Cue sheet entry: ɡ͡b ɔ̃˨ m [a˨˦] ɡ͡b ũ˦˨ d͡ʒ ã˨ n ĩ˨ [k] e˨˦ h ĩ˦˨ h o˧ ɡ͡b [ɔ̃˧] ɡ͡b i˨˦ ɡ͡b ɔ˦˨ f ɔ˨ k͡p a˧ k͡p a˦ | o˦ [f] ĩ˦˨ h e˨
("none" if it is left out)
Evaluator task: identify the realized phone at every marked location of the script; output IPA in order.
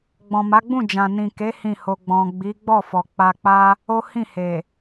a˨˦, k, ɔ̃˨, h

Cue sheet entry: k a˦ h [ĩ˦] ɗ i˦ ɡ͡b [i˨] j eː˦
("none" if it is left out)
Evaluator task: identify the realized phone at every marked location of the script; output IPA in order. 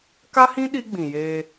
ĩ˦, ĩ˨

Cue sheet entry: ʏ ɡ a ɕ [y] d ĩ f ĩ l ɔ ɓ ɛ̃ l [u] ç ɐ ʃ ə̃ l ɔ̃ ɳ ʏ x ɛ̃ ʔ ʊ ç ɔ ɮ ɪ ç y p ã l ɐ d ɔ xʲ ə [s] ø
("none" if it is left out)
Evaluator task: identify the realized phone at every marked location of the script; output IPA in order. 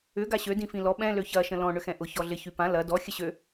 ø, ø, ɕ

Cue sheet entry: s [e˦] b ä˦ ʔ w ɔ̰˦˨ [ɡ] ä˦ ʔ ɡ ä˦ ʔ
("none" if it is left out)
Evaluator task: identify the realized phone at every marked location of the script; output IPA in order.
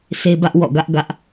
e˦, ɡ

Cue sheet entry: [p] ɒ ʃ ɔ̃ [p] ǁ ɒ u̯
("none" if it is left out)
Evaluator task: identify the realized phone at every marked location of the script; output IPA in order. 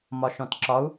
m, t

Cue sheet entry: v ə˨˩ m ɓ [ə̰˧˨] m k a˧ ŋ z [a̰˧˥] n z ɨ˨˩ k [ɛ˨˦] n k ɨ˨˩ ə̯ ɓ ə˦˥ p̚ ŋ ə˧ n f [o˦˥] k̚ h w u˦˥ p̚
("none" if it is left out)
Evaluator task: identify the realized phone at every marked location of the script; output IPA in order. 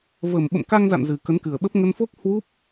ə̰˧˨, a̰˧˨, ə˨˦, o˦˥

